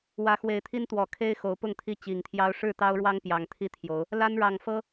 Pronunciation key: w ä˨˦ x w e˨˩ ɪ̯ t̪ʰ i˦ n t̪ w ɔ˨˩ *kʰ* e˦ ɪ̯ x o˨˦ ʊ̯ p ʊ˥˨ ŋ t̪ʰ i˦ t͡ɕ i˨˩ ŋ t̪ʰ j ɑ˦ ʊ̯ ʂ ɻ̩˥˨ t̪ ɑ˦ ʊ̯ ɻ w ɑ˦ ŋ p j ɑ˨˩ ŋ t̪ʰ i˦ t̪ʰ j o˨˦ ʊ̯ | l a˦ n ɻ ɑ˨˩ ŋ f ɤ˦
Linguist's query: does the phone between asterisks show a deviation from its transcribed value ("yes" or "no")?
no